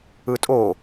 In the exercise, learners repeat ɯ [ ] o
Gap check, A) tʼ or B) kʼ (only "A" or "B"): A